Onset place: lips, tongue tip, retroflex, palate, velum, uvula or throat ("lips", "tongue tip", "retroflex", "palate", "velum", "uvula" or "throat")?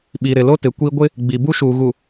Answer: lips